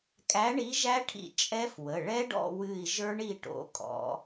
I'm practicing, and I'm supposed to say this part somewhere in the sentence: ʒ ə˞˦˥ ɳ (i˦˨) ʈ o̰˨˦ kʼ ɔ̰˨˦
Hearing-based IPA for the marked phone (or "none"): i˦˨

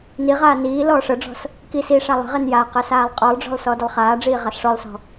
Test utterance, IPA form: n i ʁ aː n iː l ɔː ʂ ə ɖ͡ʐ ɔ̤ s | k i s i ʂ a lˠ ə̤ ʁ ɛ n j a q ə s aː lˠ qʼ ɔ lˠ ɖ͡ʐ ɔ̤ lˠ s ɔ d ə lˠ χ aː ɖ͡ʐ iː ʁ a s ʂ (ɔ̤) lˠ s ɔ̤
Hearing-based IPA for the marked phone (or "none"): ɔ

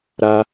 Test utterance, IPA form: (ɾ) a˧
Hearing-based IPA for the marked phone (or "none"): ɾ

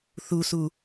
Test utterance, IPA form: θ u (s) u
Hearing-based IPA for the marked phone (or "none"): s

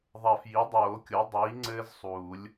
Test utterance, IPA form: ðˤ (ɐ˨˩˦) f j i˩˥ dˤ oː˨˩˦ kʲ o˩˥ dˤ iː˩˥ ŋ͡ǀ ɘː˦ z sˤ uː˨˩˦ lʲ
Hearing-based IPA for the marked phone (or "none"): ɐ˨˩˦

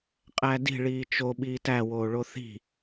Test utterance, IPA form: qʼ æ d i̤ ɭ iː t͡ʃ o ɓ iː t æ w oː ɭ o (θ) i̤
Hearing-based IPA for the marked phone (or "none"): θ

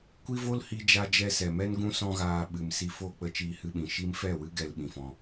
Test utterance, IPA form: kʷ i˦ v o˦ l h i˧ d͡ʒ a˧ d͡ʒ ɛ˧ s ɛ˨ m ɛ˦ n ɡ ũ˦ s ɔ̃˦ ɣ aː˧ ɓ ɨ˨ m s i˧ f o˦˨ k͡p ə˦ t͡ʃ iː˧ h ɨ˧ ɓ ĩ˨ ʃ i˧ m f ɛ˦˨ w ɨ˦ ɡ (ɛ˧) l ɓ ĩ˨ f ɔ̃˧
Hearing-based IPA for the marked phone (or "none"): ɛ˧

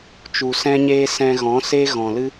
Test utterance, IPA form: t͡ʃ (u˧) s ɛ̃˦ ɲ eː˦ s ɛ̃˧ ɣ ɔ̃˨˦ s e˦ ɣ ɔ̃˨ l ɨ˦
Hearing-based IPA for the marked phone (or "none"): u˨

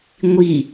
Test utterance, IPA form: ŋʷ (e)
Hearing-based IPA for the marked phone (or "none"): i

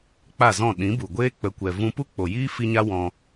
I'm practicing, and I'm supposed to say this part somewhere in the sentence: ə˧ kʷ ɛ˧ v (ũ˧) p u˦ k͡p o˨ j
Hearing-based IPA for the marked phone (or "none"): ũ˧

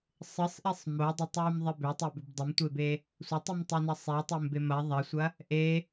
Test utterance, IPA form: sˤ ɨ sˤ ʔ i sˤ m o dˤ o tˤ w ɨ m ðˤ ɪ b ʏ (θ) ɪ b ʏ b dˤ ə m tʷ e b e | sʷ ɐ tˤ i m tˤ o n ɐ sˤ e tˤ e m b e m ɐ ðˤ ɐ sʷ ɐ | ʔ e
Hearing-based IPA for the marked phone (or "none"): tˤ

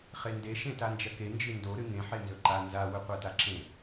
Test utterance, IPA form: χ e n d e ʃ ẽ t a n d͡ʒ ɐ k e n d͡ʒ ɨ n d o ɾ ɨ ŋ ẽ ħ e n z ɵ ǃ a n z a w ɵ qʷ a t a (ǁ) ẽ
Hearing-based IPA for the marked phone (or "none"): ǁ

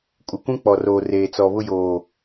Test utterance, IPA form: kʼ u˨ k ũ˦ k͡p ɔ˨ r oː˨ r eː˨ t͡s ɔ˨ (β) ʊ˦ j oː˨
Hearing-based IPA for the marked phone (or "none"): β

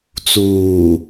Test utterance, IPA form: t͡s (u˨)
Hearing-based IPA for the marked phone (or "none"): uː˨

